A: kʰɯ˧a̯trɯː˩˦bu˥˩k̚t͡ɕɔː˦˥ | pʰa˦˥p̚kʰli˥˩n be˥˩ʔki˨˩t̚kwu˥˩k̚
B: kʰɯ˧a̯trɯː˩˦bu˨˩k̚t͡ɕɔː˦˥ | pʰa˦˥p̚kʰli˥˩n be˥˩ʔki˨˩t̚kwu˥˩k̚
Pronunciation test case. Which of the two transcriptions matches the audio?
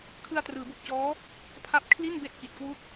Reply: B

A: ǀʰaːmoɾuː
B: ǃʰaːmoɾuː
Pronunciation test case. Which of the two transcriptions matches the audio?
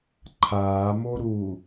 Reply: B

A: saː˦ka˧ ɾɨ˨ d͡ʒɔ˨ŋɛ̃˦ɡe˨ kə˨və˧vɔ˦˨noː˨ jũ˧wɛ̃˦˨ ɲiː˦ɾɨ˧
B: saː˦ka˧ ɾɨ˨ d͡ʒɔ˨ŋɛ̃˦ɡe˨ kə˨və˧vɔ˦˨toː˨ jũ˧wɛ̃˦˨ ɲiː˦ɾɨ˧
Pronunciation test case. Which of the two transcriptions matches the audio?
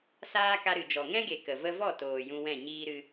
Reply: B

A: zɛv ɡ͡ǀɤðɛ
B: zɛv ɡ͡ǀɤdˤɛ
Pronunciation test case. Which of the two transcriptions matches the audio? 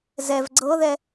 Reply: A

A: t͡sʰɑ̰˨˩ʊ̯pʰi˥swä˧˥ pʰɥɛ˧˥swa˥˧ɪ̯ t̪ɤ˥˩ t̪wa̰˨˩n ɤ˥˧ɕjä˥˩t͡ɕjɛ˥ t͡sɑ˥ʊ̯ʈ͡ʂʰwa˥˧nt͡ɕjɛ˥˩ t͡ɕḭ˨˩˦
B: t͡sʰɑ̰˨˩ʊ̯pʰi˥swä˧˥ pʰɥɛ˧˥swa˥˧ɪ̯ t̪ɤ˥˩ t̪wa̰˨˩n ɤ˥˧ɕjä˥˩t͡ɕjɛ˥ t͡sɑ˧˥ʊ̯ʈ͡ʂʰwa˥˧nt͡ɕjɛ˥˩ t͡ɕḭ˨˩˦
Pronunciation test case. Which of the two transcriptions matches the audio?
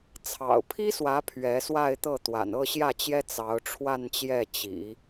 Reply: B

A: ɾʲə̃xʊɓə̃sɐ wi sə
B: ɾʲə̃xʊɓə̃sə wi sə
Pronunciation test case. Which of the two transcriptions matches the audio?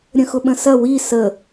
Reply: A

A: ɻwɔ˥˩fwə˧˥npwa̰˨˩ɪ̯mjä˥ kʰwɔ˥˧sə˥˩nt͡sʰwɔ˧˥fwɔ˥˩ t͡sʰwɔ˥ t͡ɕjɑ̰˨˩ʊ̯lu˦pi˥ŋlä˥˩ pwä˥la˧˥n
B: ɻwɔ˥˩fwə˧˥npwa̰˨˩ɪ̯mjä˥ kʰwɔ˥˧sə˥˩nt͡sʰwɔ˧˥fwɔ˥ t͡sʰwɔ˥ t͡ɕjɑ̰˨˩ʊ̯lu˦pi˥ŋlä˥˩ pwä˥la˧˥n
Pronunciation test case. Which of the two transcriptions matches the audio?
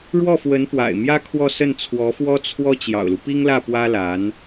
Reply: B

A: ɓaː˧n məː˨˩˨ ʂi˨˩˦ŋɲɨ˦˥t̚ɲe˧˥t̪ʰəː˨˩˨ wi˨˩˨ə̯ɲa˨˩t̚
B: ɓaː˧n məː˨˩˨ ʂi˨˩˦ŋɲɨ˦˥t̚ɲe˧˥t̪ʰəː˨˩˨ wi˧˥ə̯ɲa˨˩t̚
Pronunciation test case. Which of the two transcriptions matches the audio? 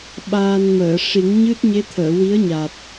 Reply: B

